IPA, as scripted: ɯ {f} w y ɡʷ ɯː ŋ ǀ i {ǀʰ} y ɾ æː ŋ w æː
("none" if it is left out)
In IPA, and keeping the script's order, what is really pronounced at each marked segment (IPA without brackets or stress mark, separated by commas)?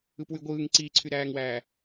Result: p, ǀʰ